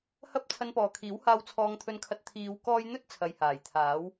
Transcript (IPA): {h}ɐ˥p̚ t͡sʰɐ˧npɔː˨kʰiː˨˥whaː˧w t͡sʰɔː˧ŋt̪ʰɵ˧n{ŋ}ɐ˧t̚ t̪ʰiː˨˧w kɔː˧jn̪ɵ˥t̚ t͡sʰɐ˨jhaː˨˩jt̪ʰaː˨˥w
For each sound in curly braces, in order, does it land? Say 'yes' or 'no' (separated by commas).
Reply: yes, no